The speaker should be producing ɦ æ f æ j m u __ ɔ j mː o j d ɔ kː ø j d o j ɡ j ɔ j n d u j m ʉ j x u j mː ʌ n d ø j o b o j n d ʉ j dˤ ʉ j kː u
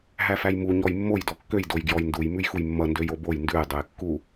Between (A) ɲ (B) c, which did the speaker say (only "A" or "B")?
A